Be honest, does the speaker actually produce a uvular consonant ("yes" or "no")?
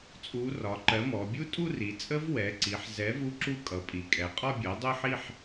yes